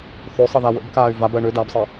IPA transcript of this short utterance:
θøsˤə ðawə̰bkaːy̯ vabɜ ɳø dabsˤəː

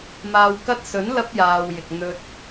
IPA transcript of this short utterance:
maː˨wkɐ˧t̚sɵ˨˥n lɐ˧p̚jaː˨wjɪ˨k̚ n̪ɵ˧t̚

